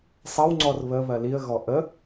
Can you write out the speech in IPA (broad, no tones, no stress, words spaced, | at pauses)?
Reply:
sˤɐwŋ͡ǀɔr βəβɜ liə̯ɣɔ ʔə